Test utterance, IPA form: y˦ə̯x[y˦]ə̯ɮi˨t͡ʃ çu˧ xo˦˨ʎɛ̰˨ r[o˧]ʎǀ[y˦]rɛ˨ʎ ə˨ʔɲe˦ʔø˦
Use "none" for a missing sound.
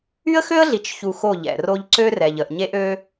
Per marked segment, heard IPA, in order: ø˦, o˧, ø˦

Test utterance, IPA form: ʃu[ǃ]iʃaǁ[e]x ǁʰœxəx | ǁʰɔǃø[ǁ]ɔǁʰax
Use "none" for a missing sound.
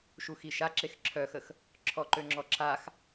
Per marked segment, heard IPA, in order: x, e, ŋ͡ǁ

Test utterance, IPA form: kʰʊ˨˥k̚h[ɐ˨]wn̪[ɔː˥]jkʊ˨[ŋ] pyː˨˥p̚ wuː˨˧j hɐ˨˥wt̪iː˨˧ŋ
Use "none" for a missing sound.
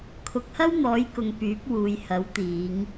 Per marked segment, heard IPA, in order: ɐ˥, ɔː˨˥, ŋ

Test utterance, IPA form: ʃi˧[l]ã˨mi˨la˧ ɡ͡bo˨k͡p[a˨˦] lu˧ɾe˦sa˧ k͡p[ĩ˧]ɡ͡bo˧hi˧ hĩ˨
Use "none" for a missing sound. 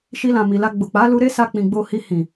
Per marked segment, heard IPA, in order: l, a˨˦, ĩ˨

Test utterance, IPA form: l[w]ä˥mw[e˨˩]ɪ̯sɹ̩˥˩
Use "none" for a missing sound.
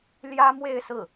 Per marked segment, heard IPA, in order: j, e˥˧

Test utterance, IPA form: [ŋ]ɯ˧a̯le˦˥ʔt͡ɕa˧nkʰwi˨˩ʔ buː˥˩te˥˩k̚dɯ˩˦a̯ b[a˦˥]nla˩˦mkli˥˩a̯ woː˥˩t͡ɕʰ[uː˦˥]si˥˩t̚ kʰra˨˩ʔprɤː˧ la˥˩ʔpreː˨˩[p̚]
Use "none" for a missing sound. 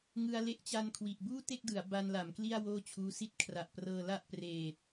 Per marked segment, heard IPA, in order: ŋ, a˧, uː˦˥, t̚

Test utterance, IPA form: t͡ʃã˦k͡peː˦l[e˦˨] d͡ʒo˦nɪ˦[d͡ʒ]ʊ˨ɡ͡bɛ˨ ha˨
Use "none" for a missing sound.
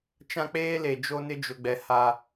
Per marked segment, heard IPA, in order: e˨, d͡ʒ

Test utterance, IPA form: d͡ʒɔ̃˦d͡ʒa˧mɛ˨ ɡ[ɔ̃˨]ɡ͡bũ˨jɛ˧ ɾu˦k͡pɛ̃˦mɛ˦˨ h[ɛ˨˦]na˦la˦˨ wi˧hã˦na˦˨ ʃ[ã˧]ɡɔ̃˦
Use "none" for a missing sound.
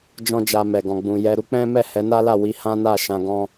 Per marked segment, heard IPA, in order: ɔ̃˨, ɛ˨˦, ã˧

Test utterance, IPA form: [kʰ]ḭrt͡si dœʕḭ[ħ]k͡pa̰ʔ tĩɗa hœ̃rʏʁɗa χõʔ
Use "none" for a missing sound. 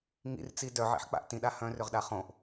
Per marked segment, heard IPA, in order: ŋ, ħ

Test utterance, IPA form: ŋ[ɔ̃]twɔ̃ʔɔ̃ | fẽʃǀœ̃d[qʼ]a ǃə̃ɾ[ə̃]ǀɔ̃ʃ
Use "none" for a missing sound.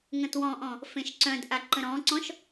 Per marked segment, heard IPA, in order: ə̃, ʔ, ɔ̃

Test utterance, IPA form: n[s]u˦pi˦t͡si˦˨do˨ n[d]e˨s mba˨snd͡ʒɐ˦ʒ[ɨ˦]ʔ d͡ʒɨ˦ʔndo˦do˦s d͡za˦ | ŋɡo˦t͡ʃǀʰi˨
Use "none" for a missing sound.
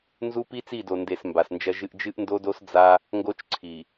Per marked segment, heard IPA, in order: z, d, ɨ˦

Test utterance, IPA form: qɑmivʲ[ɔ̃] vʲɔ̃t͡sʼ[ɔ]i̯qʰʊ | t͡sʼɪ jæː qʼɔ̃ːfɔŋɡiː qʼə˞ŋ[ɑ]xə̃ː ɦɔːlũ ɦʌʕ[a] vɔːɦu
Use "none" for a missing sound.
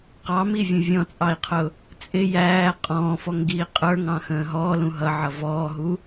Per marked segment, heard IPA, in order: ə̃, ɑ, ɑ̃, ʌ

